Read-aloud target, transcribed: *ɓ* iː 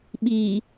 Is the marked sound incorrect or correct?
correct